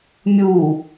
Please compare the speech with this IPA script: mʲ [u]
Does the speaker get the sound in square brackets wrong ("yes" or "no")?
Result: no